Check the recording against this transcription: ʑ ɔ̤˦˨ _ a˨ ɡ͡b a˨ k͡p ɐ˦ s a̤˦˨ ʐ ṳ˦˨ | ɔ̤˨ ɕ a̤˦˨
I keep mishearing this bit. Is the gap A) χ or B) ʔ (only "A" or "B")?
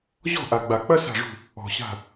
B